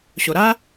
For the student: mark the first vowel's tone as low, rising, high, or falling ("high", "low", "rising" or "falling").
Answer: low